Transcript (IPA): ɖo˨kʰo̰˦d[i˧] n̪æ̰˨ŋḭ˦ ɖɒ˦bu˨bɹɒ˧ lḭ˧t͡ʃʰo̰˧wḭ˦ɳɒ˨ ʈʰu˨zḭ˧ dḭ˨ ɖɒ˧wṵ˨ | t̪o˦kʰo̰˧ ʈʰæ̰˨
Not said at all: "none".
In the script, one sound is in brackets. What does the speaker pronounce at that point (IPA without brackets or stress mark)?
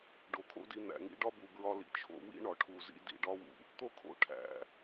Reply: i˧